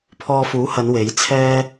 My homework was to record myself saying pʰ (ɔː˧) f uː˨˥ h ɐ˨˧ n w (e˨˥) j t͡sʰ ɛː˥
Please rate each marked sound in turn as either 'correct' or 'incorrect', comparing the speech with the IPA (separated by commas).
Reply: correct, correct